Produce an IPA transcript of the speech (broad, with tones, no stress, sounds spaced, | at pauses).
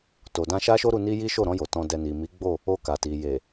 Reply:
t o˨ d ã˧ ʃ a˦ ʃ o˦ ɾ u˧ n i˦ j i˦ ʃ o˦˨ ɾ ɔ̃˧ j o˨ t ɔ̃˨ d ɛ˨ n i˨ m i˨˦ ɡ͡b o˦˨ | o˧ k a˨ t i˨ j e˨